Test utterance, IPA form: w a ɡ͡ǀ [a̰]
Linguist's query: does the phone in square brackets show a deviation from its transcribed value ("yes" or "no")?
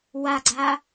yes